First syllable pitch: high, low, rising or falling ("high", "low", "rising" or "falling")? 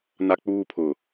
high